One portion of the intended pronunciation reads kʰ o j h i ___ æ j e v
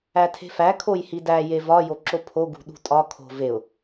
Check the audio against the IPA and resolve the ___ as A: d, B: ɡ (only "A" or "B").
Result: A